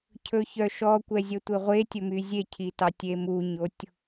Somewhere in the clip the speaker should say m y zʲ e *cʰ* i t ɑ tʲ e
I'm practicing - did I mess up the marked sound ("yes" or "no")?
no